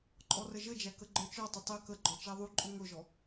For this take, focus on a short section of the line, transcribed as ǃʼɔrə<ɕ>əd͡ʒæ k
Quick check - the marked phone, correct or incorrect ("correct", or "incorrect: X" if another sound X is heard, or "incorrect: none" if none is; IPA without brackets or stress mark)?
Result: incorrect: ʒ